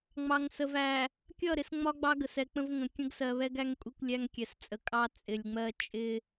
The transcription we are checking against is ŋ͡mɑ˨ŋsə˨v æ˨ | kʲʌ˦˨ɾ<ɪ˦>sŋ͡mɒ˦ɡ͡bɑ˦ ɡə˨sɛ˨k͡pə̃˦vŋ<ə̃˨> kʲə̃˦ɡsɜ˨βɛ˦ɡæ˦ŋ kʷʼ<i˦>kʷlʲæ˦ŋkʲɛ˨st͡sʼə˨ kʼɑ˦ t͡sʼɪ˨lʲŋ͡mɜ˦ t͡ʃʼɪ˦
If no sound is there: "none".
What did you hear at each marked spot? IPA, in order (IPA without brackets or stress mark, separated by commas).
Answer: ɪ˨, ə̃˨, i˦